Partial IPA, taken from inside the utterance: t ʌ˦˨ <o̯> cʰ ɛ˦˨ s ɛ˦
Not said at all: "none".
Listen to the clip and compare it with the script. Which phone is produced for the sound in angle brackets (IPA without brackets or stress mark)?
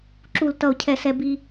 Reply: o̯